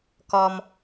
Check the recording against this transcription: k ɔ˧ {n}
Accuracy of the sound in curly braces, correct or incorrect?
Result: incorrect